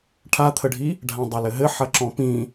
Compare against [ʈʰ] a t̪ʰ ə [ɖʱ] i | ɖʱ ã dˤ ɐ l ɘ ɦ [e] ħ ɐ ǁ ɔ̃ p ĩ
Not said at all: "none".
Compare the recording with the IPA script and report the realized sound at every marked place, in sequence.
ʈʰ, ɖʱ, ɘ

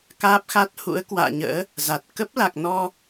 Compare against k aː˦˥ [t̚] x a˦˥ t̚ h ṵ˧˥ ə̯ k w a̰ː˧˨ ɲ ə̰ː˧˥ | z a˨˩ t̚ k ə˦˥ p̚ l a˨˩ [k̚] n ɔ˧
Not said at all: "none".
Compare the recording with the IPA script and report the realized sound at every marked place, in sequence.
p̚, k̚

